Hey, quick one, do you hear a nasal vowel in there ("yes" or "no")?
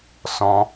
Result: yes